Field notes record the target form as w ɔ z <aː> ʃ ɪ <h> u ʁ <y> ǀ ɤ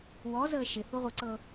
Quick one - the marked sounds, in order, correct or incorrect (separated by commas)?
incorrect, correct, incorrect